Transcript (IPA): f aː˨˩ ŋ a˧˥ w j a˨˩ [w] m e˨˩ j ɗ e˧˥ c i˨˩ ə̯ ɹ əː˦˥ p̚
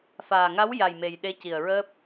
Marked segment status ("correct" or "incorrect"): incorrect